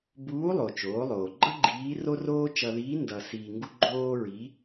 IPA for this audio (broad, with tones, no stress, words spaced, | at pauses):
buː˧˥lˠo˩ t͡ʃoː˩˧lˠoː˩ɡ͡ǃʌ˥ ɡ͡ǃiː˧˥ ro˥roː˥ t͡ʃʌ˧ðiː˧˥ ndʌ˧siː˧ŋɡu˥ ɡ͡ǃoː˥ɹi˧˥